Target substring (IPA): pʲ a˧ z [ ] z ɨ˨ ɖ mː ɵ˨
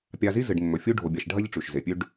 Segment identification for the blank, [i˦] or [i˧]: i˦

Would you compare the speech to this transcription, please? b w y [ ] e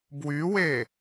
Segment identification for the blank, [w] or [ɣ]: w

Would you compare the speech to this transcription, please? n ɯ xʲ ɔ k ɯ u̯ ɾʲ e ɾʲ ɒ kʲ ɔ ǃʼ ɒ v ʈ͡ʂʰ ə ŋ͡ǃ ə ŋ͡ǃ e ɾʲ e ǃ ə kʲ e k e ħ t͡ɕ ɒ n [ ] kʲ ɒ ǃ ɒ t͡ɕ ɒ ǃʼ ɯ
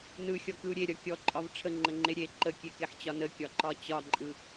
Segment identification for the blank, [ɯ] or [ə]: ə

